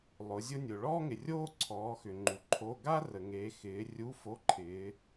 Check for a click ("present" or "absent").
present